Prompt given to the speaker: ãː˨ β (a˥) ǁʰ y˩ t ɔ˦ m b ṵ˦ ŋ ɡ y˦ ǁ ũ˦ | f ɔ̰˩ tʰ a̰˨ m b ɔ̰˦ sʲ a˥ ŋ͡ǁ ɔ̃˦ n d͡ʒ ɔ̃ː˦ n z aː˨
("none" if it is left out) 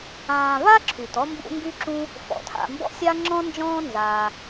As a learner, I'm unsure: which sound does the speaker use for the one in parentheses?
a˥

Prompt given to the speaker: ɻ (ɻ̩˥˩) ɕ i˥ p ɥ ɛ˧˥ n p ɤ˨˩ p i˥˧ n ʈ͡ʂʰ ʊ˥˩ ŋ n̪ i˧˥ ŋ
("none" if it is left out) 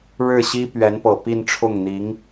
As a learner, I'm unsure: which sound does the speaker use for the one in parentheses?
ɻ̩˥˩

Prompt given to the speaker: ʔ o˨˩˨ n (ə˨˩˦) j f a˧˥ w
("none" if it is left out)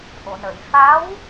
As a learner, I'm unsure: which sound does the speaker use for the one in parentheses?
ə˨˩˨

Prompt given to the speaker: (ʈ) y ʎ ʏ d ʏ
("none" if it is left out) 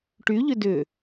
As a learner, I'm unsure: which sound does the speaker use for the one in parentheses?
ʈ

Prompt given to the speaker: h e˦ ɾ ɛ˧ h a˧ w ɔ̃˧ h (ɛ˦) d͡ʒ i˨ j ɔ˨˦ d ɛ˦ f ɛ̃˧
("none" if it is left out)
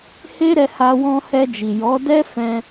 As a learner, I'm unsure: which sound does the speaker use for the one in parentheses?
ɛ˧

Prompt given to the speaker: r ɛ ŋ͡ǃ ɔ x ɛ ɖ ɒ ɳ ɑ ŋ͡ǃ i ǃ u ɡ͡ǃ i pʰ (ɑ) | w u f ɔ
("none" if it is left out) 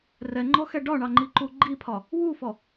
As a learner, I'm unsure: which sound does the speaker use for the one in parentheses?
ɒ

